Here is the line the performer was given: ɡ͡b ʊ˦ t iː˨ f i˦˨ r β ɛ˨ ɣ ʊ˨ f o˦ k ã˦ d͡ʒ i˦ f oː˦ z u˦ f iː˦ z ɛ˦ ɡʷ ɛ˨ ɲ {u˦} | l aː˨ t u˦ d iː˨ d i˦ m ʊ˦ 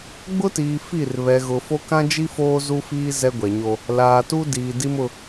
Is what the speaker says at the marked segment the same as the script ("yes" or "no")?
no